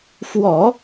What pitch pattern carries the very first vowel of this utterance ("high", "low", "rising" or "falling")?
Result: low